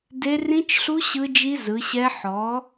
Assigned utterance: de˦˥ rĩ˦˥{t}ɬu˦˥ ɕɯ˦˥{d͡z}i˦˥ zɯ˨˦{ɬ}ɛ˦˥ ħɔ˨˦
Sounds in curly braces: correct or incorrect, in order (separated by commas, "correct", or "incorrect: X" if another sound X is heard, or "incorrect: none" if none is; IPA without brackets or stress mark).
incorrect: t͡ʃ, incorrect: d͡ʒ, incorrect: ɕ